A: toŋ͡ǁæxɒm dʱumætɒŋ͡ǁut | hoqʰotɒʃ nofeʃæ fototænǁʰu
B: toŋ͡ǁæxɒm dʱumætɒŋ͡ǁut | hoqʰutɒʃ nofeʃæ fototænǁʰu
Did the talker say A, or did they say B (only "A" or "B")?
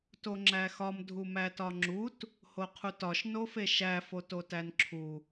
B